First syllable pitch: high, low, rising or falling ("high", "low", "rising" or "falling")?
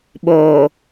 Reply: low